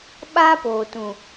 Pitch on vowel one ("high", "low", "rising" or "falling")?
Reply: high